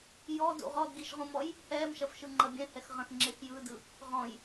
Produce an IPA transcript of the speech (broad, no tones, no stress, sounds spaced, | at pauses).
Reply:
j ɔ d ṵ ʁ ɔ d ɡ i ʃ ʁ ũ m ɔ j | h ɛː m ʃ ɐ f ʃ ɯ ŋ͡ǃ ɐ bʲ ɛ̃ h ɛ x ʁ ɐ̃ x ŋ͡ǁ e x j ɯ d ɯ | ʁ ɔ̃ j